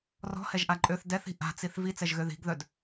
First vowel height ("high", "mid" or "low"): mid